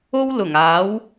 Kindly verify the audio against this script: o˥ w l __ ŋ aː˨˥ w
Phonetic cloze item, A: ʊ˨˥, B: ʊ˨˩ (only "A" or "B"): B